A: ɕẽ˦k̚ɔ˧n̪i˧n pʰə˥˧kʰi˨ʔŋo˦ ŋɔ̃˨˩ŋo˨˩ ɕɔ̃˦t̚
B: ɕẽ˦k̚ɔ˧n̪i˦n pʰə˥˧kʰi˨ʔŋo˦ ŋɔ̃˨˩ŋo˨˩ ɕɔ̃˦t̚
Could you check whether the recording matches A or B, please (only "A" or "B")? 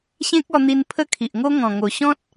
A